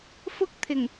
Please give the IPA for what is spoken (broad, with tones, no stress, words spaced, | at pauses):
fʊ˥k̚t̪ʰɪ˨˩ŋ